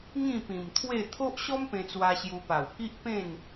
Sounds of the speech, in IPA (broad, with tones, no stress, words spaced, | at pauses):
ŋĩ˥˧pĩ˨˩mt̪ʰwe˥˧ t̪ʰo˦ʔɕɔ˦mpẽ˧t͡swa˧ ɕju˧pa˨˩w ki˦ʔpẽ˥˧n